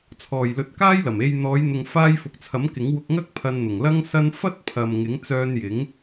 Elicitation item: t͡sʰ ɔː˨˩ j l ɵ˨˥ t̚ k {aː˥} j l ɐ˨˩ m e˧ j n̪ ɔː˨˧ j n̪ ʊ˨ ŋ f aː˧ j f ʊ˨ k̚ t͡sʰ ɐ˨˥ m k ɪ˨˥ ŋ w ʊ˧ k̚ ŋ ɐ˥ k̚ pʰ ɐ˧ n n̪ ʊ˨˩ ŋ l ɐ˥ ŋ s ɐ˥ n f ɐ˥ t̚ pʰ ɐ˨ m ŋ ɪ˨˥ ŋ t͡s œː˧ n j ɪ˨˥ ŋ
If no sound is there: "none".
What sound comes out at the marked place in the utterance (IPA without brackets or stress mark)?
aː˥